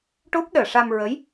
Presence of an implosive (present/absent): present